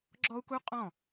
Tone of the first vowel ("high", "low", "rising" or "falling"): high